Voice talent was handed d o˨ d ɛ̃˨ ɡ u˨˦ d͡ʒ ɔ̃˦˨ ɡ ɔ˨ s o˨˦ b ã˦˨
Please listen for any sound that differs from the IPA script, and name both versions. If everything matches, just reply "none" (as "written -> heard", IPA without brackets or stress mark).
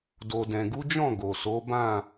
ɔ˨ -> o˨